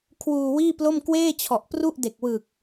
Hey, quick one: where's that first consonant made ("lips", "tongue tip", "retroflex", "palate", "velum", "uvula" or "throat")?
velum